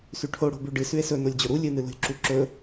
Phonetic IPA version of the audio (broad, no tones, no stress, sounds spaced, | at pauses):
s ʉ ʈʰ o ɽ o̤ b ʉ ɖ ɨ s ʉ e̯ s ɵ n o lʲ d͡ʑ ɵ ɾ u lʲ ɨ n ɨ l ṳ lʲ ǁ u ǁ ɵ